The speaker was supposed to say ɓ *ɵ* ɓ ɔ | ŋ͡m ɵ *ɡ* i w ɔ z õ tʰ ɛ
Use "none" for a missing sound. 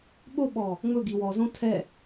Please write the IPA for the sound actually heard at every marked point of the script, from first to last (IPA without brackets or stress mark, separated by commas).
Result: o, ɡ